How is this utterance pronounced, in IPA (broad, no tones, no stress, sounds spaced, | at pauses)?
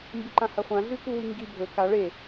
m b ɨ ǃ ã h ɐ χʷ ã ɮ ʉ k u w i ŋ ɡ i bʱ ɵ k a ɭ e